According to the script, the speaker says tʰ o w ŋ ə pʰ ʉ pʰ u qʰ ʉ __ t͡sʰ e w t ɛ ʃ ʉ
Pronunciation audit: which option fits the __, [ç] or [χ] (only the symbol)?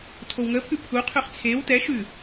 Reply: χ